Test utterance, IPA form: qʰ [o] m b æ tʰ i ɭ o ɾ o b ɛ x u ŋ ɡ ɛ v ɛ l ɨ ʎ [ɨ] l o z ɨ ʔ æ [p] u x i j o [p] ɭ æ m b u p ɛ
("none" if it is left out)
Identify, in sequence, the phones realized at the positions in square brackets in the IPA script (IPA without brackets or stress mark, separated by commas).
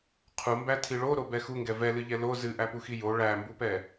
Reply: u, ɛ, p, none